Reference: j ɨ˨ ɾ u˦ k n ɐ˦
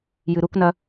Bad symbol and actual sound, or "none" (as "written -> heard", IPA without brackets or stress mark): none